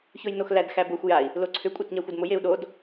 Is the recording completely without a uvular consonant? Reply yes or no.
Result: yes